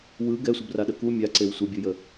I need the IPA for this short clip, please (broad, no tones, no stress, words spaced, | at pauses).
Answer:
wɯ ɡɛsʷəbraɗə ku mʲaǀew sʷəbʲɯjə